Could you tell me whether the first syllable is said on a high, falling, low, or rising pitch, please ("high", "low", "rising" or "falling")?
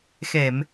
low